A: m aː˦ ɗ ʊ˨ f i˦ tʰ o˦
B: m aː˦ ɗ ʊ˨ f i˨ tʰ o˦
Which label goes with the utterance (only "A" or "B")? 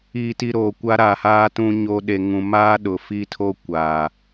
A